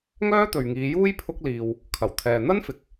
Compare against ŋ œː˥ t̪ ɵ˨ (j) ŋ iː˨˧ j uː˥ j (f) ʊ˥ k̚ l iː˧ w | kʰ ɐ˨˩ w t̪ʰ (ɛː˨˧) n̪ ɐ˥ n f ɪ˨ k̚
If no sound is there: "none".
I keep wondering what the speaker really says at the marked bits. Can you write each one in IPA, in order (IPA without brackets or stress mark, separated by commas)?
ɥ, pʰ, ɛː˨